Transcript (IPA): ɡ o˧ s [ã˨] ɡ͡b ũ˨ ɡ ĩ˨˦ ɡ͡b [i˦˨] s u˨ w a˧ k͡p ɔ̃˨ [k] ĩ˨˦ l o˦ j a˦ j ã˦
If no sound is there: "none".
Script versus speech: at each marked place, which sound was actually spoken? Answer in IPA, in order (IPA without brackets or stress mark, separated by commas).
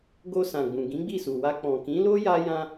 ã˨, i˦˨, k